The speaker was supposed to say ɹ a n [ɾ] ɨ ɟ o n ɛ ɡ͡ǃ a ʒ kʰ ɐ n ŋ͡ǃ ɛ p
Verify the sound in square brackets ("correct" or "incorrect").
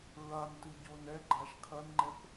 incorrect